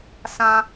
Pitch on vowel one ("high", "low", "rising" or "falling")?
high